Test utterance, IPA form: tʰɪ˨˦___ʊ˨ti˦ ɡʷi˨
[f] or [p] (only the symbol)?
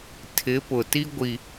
p